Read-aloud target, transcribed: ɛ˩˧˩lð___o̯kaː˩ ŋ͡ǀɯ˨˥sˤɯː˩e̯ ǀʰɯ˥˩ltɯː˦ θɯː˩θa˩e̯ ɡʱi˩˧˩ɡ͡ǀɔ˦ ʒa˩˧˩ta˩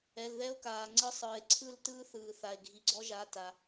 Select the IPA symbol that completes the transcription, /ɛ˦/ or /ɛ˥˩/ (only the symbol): ɛ˦